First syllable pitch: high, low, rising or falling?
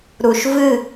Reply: low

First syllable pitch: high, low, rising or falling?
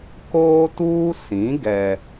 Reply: high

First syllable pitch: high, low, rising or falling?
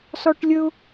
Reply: high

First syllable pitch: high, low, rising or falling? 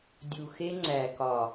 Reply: low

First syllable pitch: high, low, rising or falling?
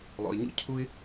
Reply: low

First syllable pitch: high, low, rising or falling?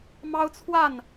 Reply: high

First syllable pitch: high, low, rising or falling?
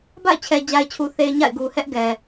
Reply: falling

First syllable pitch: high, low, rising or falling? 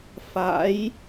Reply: rising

